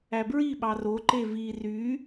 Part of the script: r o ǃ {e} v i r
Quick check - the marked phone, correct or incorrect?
correct